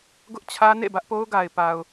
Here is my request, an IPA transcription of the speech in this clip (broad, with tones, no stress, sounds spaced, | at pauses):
ɡ ʊ˦ ʔ t͡ɕʰ ä˦ n ḛ˦˨ b ä˦ ʔ p o˦ ʊ̯ ɡ a˨ ɪ̯ p a˨ ʊ̯